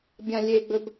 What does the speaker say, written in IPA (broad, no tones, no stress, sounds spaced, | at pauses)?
bʲ ã lʲ e ɡ͡b ɵ b